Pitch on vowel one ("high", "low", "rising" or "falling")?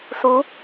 rising